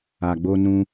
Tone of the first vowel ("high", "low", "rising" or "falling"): low